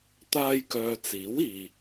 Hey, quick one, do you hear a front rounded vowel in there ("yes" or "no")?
yes